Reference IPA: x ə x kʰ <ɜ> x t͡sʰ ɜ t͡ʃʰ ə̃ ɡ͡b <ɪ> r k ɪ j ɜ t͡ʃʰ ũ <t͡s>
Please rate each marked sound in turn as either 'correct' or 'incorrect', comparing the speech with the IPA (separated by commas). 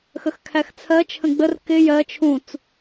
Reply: incorrect, incorrect, correct